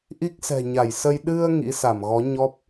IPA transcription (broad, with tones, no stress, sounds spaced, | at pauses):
ʔ i˦˥ k̚ s ɛ̤˨˩ ɲ a˧˩ j s ə˧ j ɗ ɨ˧ ə̯ ŋ ḭ˧˥ s a˧˩ m ɣ ɔ˨˦ ɲ ɔ˦˥ p̚